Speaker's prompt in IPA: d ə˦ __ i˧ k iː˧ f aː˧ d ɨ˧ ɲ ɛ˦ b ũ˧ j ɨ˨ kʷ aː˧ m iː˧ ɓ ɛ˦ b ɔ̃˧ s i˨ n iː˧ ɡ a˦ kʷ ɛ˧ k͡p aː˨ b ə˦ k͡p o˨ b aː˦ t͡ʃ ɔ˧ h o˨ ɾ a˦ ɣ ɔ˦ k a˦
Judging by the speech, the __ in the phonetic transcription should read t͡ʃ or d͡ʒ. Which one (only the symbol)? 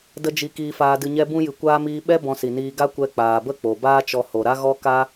d͡ʒ